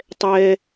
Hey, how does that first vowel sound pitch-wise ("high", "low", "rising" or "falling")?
high